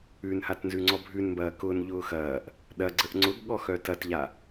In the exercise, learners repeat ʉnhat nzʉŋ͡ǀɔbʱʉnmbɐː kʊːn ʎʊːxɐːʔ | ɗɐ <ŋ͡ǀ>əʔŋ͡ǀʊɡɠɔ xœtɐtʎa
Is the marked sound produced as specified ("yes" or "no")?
no